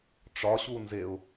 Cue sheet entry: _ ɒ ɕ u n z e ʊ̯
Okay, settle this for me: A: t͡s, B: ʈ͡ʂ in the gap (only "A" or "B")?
B